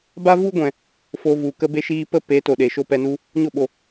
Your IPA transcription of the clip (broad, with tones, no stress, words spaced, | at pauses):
ba˦vu˦ɡʷɛ̃˨ | fo˧vu˨ kə˧be˧ʃiː˧pə˦ pe˨˦ to˨ɗe˨ ʃo˦pɛ˧nu˦ | ɲo˦˨ɓo˨